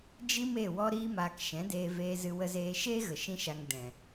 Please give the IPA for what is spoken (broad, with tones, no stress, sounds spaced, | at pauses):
d͡ʒ i˦ m e˦˨ w ɔ˧ ɾ iː˧ m aː˨ k ʃ ɛ̃˨˦ d eː˧ v eː˧ z ɨ˧ w ə˧ z eː˧ ʃ eː˦ ɣ ə˨ ʃ ĩ˦ ʃ a˧ ŋ d ɛ̃˨